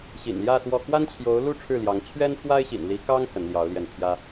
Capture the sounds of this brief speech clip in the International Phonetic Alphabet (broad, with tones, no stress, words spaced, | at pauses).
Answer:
ɕḭ˨˩nljä˥˧ swɔ˥˩ kwa˥nt͡ɕʰjo˧˥ʊ̯lu˥˧ ʈ͡ʂʰɻ̩˥˩ljɑ˧˥ŋ t͡ɕʰɥɛ˥npʰwa˥ɪ̯ɕḭ˨˩n li˧˥kɑ˥ŋ sə˧˥nljɑ˧˥ʊ̯ljɛ˥˩n pʰjä˥